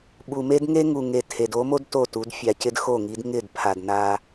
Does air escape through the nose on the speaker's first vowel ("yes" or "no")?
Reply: no